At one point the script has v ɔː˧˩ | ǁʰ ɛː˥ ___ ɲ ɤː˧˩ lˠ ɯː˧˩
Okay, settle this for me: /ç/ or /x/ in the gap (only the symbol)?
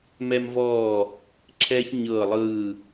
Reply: ç